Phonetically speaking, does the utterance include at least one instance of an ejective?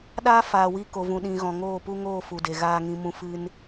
no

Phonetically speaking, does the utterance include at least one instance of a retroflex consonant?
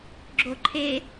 no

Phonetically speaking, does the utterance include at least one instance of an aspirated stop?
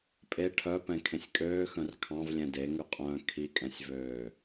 yes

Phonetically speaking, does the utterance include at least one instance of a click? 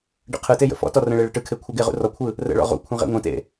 no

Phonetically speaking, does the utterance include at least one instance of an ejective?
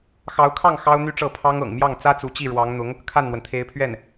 no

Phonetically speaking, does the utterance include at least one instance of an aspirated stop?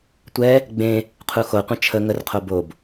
yes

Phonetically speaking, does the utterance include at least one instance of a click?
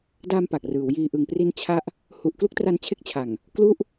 no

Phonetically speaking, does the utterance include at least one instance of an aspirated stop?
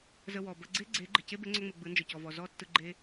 no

